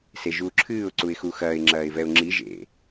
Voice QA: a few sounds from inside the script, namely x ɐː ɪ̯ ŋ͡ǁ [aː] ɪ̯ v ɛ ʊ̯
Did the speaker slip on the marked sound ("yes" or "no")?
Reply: yes